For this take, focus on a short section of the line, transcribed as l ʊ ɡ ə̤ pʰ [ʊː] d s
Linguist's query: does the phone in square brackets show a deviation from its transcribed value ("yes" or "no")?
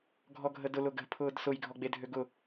no